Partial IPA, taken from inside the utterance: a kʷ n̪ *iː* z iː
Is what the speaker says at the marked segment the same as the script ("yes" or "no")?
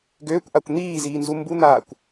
yes